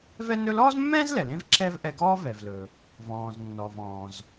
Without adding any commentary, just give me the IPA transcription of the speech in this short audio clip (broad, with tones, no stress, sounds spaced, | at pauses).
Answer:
v ɛ˥ n ɵ˥ l ɔː˥ z mː ɛ̃ː˥ z l ɛ˩ l ẽ˥ v ǁ ɛ˥ v ʔ ɛ˧ ɡ ɔː˥ v ɛ˩ v l ɵ˩ | v ɔ̃ː˩ z nː ɔ˩ v ɔ̃ː˩ z